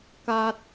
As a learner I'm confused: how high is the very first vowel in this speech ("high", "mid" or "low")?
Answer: low